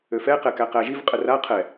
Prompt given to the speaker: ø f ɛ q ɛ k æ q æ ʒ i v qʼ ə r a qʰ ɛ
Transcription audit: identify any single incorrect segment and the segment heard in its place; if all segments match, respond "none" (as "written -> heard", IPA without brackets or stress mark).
none